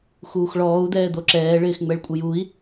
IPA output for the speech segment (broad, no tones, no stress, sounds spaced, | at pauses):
x uː x ɭ ɔː u̯ d̪ ɛː d̪ o ǁ ɛː ɭ ɪː x ŋ͡m ɛ ɭ kʷʼ ə j u i̯